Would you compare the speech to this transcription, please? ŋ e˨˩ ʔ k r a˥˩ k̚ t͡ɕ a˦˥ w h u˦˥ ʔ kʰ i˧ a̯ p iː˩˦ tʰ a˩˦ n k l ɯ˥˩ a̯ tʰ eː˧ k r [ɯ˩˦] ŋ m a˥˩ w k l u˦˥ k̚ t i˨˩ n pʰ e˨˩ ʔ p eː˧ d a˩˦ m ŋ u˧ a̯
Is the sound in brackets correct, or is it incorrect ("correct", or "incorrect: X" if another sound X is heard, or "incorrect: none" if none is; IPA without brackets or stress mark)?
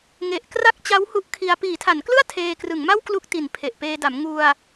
correct